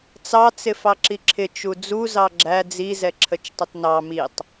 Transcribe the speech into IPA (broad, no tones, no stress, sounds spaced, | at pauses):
t͡s ɑ t͡s ɪ f ɑ ǁ i ǁʰ ɪ t͡ʃ u d͡z u z ɑ ɡ͡ǁ æ d͡z i z ɛ ǁʰ ə t͡ʃ tˤ ə t n ɑ m i tˤ